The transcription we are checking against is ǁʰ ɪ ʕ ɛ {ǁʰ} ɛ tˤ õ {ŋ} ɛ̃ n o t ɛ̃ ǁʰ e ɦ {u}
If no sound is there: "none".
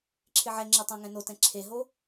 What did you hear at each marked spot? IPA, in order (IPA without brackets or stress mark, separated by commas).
ŋ͡ǁ, ŋ, o